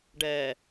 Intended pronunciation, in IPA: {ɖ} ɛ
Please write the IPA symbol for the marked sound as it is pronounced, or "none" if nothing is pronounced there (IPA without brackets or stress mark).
ɖ